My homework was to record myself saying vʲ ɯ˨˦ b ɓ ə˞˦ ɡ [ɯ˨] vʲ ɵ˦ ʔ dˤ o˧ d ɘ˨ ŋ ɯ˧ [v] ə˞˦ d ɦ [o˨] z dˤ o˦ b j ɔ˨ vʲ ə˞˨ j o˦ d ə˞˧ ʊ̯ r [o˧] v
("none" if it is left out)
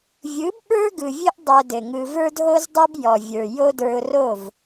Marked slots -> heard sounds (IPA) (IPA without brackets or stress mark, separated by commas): ɯ˨, v, o˦, o˦˨